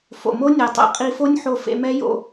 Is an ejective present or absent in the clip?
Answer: present